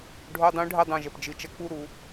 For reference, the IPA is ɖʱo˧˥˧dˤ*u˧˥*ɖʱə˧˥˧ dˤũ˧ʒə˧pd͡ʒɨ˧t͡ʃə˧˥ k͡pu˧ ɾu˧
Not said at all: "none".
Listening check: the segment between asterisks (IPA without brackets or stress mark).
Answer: ũ˧˥